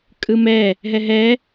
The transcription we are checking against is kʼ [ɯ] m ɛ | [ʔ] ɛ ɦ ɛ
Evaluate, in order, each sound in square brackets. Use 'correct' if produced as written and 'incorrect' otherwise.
correct, incorrect: ɦ

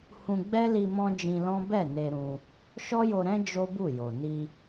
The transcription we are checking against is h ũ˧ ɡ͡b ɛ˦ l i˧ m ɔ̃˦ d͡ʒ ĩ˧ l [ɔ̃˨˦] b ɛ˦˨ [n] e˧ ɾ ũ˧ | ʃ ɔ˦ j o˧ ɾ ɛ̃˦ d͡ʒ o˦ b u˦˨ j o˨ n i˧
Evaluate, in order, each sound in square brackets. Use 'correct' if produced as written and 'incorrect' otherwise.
incorrect: ɔ̃˦, correct

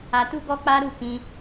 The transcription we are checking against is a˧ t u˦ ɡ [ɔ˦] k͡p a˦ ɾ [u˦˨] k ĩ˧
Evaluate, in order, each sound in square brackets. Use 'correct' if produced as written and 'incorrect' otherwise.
correct, correct

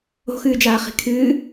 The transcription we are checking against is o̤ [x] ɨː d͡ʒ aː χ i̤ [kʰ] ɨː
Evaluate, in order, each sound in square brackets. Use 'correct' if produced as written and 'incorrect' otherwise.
correct, correct

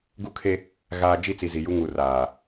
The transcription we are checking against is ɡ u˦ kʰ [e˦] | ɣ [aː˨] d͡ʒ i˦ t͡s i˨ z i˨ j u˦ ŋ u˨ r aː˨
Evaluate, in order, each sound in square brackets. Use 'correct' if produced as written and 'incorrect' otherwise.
correct, incorrect: aː˦

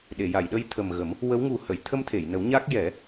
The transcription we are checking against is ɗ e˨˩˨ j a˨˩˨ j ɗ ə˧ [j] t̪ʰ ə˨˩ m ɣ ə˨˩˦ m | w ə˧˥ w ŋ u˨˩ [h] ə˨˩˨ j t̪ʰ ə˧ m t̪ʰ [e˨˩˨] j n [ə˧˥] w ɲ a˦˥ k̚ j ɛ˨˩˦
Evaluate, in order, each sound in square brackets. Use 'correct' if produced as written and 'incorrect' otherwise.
correct, correct, correct, incorrect: ə˨˩˦

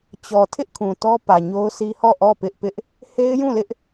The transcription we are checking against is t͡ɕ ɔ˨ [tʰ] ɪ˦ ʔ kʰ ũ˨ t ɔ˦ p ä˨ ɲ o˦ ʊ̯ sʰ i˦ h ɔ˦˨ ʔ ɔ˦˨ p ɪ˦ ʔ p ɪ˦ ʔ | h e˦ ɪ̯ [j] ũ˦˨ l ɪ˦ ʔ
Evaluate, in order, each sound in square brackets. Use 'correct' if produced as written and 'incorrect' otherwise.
correct, correct

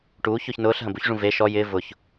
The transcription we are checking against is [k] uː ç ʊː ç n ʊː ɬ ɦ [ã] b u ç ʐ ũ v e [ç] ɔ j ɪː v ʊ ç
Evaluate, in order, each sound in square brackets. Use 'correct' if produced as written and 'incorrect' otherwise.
incorrect: ʈ, incorrect: ɐ̃, incorrect: ʃ

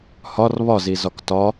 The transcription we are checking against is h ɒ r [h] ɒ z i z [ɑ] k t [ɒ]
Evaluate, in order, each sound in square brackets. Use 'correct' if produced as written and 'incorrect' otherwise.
incorrect: β, incorrect: ɒ, correct

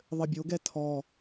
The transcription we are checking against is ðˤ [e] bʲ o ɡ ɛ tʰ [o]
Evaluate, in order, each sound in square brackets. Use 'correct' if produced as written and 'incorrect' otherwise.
incorrect: ɘ, incorrect: ɔ

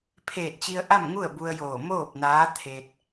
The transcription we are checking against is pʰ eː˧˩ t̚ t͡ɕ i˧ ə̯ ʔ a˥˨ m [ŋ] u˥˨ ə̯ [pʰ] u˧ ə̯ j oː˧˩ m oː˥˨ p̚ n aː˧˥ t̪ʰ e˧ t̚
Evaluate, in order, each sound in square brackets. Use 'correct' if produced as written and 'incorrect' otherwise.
correct, incorrect: b

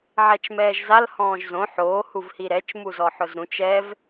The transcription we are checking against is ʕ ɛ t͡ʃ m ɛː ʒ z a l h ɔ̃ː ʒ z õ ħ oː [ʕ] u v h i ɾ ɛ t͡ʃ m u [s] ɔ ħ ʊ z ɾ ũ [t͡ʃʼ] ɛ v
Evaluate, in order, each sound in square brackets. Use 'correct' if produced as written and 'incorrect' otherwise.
incorrect: h, incorrect: z, incorrect: t͡ʃ

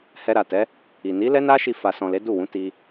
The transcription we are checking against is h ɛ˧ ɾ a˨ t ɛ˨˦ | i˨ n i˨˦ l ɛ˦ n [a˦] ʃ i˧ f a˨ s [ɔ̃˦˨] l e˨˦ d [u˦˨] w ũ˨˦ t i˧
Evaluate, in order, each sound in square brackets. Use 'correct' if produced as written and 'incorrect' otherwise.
correct, incorrect: ɔ̃˨, correct

